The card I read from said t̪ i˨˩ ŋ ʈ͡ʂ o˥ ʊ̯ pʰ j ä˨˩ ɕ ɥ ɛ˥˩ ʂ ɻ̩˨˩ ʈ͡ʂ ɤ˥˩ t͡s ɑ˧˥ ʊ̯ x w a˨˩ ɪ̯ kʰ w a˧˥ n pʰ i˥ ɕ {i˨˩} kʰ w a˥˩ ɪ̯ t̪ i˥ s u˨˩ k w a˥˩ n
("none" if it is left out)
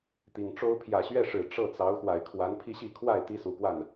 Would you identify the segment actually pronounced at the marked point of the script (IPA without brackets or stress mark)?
i˥˧